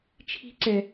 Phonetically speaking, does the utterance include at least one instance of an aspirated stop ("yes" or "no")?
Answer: yes